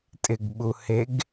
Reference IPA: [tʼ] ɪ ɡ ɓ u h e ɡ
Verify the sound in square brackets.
correct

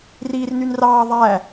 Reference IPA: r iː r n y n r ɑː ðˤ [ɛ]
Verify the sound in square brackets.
incorrect: æ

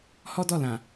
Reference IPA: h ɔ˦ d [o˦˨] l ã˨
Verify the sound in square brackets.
incorrect: ɔ˦˨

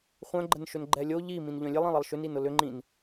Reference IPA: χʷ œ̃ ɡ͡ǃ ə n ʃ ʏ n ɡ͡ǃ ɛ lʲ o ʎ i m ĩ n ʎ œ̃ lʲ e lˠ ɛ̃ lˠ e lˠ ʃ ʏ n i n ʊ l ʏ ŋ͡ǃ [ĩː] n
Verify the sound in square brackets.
incorrect: ĩ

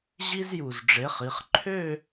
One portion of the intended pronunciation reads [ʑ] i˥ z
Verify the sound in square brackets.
correct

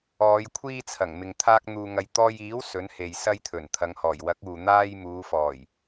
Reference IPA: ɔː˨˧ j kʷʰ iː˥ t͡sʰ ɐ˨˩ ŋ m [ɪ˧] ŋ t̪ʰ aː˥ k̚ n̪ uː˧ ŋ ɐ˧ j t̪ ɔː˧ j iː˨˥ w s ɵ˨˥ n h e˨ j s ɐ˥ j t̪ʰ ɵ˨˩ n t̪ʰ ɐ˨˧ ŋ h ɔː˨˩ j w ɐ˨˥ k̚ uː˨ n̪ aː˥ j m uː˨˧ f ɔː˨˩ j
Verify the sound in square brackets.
incorrect: ɪ˨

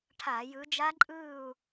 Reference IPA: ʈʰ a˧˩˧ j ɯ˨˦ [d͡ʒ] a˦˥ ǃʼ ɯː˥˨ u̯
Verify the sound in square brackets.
correct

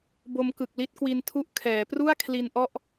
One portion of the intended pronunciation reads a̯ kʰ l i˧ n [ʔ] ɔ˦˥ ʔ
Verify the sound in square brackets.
correct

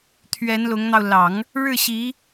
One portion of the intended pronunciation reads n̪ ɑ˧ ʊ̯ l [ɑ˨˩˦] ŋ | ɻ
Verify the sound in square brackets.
correct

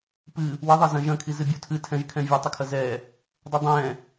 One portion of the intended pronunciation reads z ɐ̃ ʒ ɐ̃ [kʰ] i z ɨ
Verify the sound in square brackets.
correct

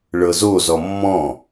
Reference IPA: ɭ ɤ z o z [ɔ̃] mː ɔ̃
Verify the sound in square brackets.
incorrect: ɔ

